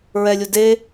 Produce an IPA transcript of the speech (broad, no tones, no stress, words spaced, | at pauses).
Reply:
ɹɛlʲu de